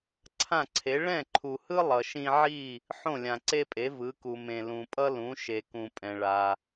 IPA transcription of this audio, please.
ǀʰ ã˥˩ ǀʰ e˩˥ ɭ ɛ̃˥˩ ǃʰ u˩ h ɯ˥ lˠ ʌ˩ ʃ ĩ˧ ʕ i˥˩ | ħ õ˥˩ lʲ ã˩ ǀ e˥ pʼ e˩˥ v ɯ˩˥ k u˩ m ẽ˩ l ũ˩ pʼ ʌ˥ l ũ˩˥ ʃ e˩ k ũ˩ pʼ ɛ̃˩ ɭ a˩

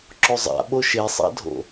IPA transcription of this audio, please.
ǁ o zˤ a̰ ɓ o ʃ e sˤ a̰ dʱ o̰

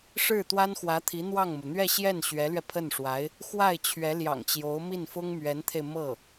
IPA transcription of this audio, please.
ʂ ɻ̩˥˩ t̪ w a˥ n x w ä˧˥ t̪ʰ i˧˥ n̪ w ɑ˥˩ ŋ m u˩ n̪ ɥ ɛ˥˧ ɕ j ɛ˥˩ n ɕ ɥ ɛ˧˥ l ɥ ɛ˧ pʰ ə˥˩ n ʂ w a˧˥ ɪ̯ | x w a˥˩ ɪ̯ t͡ɕʰ ɥ ɛ˧˥ l j ɑ̰˨˩ ŋ t͡ɕ j o˧˥ ʊ̯ m i˥˩ n f ʊ˥ ŋ m ɥ ɛ˧˥ n t̪ʰ e˧ ɪ̯ m ɤ˥˩

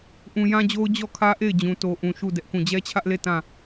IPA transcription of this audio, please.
ʔ ũ˨ j ã˦ d͡ʑ o˦ ʊ̯ d͡ʑ ɔ˦˨ kʰ ä˦ ʔ e˦˨ ɪ̯ d͡ʑ ũ˨ t o˨ ʔ ũ˨ ʃ u˦˨ d ɛ˦ ʔ k ũ˦˨ d͡ʑ ɛ˦ t͡ɕʰ ä˦ ʔ l e˦˨ t ã˦˨

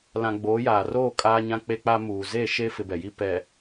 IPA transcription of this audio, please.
l ã˨ ɡ͡b oː˨˦ j aː˨ r oː˦˨ kʼ aː˦ ɲ ã˦ k͡p e˦ k͡p a˦ m uː˨ z e˦˨ ʃ e˦ f ɪ˦ b ɛ˨ j i˦ p ɛ˨

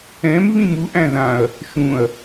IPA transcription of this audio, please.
ɛ̃ m β ĩ m u ʔ æ̃ ð ã ɐ̯ | ʃ ũ ɐ̯

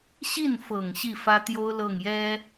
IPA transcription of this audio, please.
ɕ i˥˩ n f ɤ˨˩ ŋ ɕ i˥˩ f ä˥ t̪ j o˥ ʊ̯ l ɤ˥˩ ŋ j ɛ˥

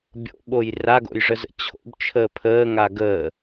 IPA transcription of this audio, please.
bʲ o̰ ɓ o j r a ɡ o̰ j ʐ ə z ə̰ t͡ɕʰ o̰ b t͡ʃʰ əː pʰ əː ŋ a ɡ əː

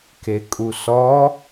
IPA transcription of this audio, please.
k e kʼ u s ɔ

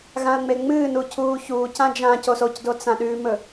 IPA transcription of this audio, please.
ɣ ã ə̯ ŋ͡m e ŋ͡m ɨː n u cʰ uː ç uː c ã d͡ʒ ã c o s o c d o t͡s ã ɗ ʉ m ɵ

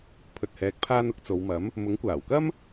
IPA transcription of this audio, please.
pʰ ɵ˨ t̚ h ɛː˨ k̚ pʰ aː˧ n ʊ˨˥ k̚ t͡s o˨˧ w m ɐ˨˥ m | m ʊ˨˥ ŋ kʷ aː˨˩ w k ɐ˥ m

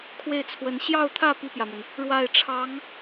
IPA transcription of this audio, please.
kʰ w e˥˩ ɪ̯ t͡sʰ w ə˧˥ n ɕ j ɑ˥˧ ʊ̯ t̪ʰ ä˥˧ p i˥˩ p j ä˩ m ə˩ n | ɻ w a˥˩ ɪ̯ ʈ͡ʂʰ ɑ˧˥ ŋ

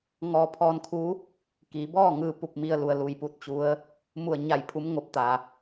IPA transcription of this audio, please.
ŋ ɔː˧ pʰ ɔː˧ n kʰ u˧˥ | k iː˩˧ b ɔː˥˨ ŋ ɯː˥˨ p u˥˨ p̚ m i˧ ə̯ l u˩ ə̯ l u˩ j p u˧˥ t̚ t͡ɕ u˧˥ ə̯ | m u˧˩ ə̯ ɲ a˧˩ j pʰ u˧˥ m ŋ o˧˥ p̚ t̪ a˩

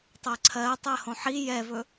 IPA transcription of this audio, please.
tˤ ɜ ǀʰ ɜ tˤ ɜ h õ ħ i j ɛ v ɵ

